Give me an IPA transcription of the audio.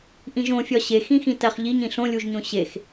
ʔ ĩ ʒ õ fʲ ɒ ɕ e x ĩ x ĩ t æ χ ʎ i ɲ ĩ ɬ õ lʲ u ʒ ɲ õ ɕ e x

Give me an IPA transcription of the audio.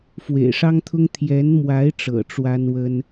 f w ḛ˨˩ ɪ̯ ʂ ɑ˥ ŋ t̪ʰ ʊ˥ ŋ t̪ʰ j ɛ˧˥ n m w a˧˥ ɪ̯ ʈ͡ʂ ɤ̰˨˩ ʈ͡ʂ w a˥ n w ə˥ n

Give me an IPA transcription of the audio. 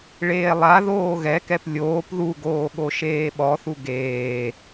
ɭ eː lˠ a ð oː ɣ ɛ k ɛ p lʲ oː p ð u ɡ oː ɠ o ʃ eː ɓ ɔ θ u ɡ eː

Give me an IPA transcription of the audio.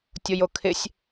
tʲ o j o kʰ ɪ sʲ

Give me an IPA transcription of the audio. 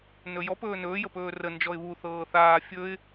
n ɵ j ɔ p ɵː n ɵː j ə p ɵː r ə n d͡ʒ ɔ ɪ̯ β u θ ɤː θ aː fʲ ɵ ɪ̯

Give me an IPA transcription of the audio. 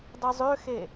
dˤ i zˤ ø x e

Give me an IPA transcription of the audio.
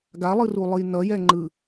ɡ a lˠ ɯ r u lˠ ɯ j n ʌ j ɛ ŋ͡ǃ ɯ

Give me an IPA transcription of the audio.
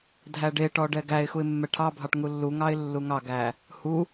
dʱ æ ɖ e ʈ ɔ ɖ ɛ ɡ æ ɪ̯ x u ɪ̯ mː ɛ ʈʰ ɑ bʱ ɑ ʈ ŋ u lː u ŋ ɑ ɪ̯ lː u ŋ ɑ ɡ æ | h u

